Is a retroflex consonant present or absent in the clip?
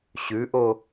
absent